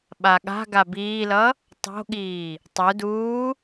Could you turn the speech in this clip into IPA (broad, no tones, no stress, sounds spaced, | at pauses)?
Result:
ɓ a ɠ a̤ ɡ a b iː l ʌ | tˤ o̤ ɠ iː | tˤ u d uː